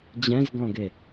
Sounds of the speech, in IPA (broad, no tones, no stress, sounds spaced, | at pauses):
d͡ʑ ɛ̃ z ɡ ɔ̃ ɡ e